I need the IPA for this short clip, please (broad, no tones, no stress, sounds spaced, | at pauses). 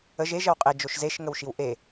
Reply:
ə ʒ e ʒ ə w qʼ e d͡ʒ o ʃ z e ʃ ŋ ə w ʃ i w ʔ e